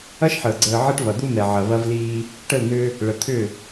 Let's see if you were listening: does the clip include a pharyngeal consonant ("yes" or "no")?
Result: yes